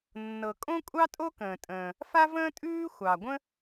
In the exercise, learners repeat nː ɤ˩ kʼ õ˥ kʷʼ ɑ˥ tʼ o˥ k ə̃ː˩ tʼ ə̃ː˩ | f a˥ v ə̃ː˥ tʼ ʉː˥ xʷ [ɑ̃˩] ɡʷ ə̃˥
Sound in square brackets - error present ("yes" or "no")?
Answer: yes